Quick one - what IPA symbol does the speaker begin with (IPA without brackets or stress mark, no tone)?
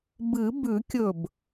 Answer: b